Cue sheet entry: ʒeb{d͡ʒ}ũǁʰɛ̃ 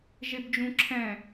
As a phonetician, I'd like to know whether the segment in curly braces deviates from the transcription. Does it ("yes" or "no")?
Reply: no